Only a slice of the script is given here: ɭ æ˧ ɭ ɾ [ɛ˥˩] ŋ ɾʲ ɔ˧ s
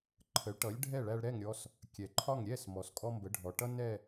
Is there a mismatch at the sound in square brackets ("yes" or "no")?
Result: no